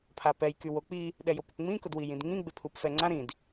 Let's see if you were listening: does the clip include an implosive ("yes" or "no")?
yes